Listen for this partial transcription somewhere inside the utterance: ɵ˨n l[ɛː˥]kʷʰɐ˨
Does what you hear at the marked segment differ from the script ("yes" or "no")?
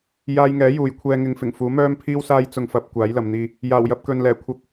yes